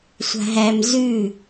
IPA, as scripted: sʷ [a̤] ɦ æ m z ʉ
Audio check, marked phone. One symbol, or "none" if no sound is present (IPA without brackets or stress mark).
a̤